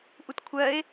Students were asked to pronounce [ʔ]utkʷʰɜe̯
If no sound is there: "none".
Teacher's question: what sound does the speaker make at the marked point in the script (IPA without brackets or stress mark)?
ʔ